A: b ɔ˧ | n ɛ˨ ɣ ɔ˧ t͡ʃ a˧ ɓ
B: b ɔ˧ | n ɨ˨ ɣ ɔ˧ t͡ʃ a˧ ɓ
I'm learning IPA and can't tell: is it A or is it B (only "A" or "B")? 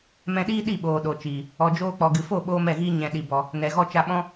A